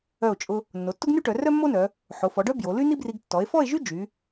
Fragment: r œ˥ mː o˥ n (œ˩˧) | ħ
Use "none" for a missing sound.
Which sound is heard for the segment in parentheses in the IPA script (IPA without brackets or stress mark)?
œ˩˧